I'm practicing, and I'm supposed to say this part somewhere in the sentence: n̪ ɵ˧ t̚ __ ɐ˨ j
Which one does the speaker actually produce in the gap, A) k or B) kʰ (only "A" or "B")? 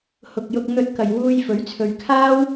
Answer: A